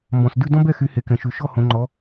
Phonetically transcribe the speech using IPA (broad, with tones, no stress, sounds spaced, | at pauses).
m b ɔ̃˨ s d ʉ˥˧ d ɔ̃˥ b ɛ˥˧ x y˨˦ h e˨ k ɛ̃˨ ʃ ʉ˨ ʃ ɔ˥˧ h õ˨˦ ŋ͡ǃ ɔ˨˦